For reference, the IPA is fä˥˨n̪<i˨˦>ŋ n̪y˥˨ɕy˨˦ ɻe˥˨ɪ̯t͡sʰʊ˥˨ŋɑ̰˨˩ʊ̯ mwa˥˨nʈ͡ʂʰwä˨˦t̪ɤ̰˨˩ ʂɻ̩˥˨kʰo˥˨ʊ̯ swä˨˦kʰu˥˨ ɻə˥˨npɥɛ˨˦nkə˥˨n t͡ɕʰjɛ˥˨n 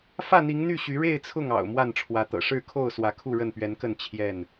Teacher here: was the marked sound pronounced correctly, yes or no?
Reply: yes